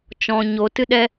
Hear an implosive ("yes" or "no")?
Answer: yes